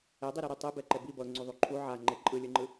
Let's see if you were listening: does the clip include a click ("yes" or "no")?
yes